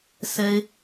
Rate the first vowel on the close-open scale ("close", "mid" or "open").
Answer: mid